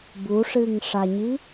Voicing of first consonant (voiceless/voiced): voiced